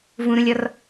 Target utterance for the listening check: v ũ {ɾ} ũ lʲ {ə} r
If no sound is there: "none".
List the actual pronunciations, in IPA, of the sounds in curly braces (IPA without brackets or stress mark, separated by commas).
ɾ, ɔ